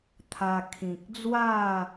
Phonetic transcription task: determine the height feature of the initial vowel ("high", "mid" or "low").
low